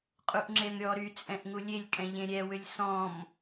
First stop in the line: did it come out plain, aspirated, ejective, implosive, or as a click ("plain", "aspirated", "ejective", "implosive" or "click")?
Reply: ejective